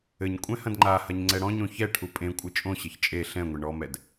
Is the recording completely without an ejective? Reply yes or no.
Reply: no